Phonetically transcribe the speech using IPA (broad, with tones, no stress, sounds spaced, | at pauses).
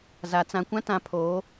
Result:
z a˨ t͡s ã˨ kʷ ã˦ t ã˨ pʰ oː˨˦